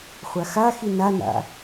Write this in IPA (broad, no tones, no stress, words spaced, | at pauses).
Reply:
χʷaxaxi nana̰